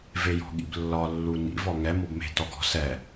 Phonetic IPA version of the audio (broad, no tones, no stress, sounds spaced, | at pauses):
v e j ɔ̤ ɠ ḭ b lː ɒ lː u n ḭ v ɔ ŋ ɛ m ɔ b m e̤ t ɔ ɡ ɔ̤ s ɛ